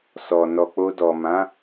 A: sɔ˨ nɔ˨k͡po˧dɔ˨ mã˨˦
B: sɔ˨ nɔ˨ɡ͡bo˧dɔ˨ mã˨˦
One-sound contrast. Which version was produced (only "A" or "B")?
A